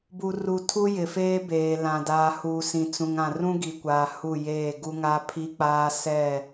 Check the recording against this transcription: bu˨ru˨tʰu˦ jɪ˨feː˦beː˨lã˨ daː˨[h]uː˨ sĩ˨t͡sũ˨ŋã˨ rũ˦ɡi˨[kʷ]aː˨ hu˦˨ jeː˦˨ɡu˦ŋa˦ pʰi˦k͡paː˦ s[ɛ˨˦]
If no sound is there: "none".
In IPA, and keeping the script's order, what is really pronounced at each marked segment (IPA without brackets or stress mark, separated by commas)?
h, kʷ, ɛ˦˨